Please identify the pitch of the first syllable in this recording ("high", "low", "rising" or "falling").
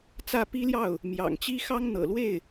falling